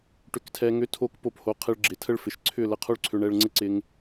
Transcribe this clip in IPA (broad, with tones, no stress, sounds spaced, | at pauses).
ʈ ʏ˧ k tʰ ɛ˧ ŋ ʏ˦ tʰ o˦ k p o˦ p h o˧ qʰ ɪ˧ ɭ ɡ͡ǁ ɪ˨ tʰ ə˦ ɭ f ɪ˨ ʃ ǀʰ ʏ˦˨ l ə˧ qʰ o˦ ɭ ǀʰ ʏ˧ ɳ ɛ˧ ɭ ŋ͡ǀ ɪ˦ ǀ ɪ˧ ŋ